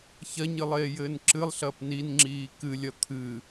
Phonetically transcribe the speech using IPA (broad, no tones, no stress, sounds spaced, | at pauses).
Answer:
ç ɐ ɲ ɨ lˠ eː j ɘː n ǁ ɨ lˠ ɬ ɐː p n i n ŋ͡ǁ iː k ɨ lʲ ɐ t̪ʰ ɨ